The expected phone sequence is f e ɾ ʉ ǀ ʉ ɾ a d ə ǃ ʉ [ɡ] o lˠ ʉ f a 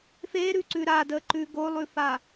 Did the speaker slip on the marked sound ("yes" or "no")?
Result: no